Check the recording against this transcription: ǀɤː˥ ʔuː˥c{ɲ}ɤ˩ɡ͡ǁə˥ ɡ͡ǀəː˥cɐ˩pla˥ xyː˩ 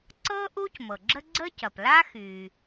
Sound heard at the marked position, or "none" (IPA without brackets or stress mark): m